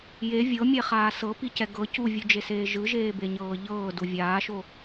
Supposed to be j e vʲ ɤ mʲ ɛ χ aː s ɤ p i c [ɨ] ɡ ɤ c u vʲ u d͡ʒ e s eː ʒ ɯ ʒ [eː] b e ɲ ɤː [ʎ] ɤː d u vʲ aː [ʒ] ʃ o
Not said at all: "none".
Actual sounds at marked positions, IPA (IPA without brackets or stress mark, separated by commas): ɛ, eː, ʎ, none